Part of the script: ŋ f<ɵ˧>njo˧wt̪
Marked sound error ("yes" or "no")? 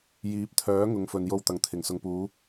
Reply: yes